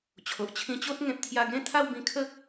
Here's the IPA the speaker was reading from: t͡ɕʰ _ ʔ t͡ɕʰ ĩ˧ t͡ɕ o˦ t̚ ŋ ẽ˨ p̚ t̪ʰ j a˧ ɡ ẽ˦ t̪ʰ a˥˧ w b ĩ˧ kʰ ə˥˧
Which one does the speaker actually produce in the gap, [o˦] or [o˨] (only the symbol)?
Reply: o˨